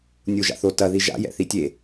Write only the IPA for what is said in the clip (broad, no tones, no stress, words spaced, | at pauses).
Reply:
nʲuʒa̰θo tɐ ðiʒa̰ jɛ̰θitʲe